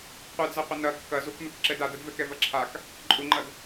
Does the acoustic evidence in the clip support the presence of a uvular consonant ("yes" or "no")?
yes